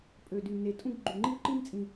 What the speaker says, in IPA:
pʼ ø˨˩ d y˨˩ n e˨˩ tʼ ũ˥ ɡ ɡ͡ǃ y˨˩ ŋ͡ǃ i˥ w ǃ i˥ m t͡sʼ ĩ˨˩

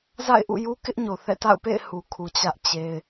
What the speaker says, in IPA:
z a̰˦˨ ɪ̯ ʔ ṵ˦˨ j u˦ k ɪ˦ ʔ ɲ o˨ θ ɛ̰˦˨ t a̰˦˨ ʊ̯ p ḛ˦˨ ɪ̯ h u˨ kʰ u˨ t͡ɕ ä˦ ʔ t͡ɕ e˦ ɪ̯

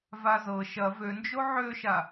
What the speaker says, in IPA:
v a z ɤ ʃ ɐ v ø n d͡ʒ o ʕ ø ʃ a

